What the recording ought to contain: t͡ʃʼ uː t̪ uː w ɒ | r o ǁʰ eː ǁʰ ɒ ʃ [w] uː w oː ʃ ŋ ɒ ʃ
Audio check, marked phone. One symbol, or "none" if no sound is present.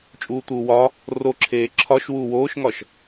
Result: w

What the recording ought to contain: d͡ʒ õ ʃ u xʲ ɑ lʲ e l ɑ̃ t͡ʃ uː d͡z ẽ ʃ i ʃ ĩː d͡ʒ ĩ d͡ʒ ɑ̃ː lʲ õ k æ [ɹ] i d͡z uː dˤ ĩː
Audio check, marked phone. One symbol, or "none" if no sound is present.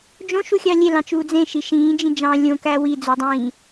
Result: w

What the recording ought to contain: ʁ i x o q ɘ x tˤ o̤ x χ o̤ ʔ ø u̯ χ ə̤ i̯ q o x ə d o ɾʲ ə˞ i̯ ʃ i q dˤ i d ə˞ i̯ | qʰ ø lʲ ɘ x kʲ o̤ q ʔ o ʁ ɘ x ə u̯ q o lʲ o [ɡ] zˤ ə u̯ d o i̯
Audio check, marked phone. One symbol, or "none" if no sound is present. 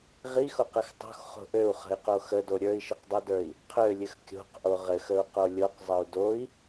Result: q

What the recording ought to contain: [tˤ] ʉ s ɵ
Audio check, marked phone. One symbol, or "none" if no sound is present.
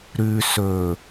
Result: ɾ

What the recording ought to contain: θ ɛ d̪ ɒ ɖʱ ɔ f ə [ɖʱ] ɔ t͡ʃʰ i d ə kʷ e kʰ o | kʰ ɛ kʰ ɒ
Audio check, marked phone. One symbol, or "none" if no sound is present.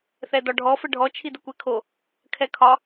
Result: ɖʱ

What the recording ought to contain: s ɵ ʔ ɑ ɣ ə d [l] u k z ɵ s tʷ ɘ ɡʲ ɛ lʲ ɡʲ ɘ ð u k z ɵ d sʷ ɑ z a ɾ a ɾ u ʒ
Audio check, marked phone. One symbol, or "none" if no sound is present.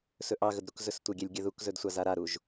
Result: ɾ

